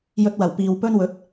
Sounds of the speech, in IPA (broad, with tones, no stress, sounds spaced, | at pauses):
j ɵ˧ t̚ w ɐ˨˩ w p iː˨ w p ɵ˥ n w ɵ˨˥ t̚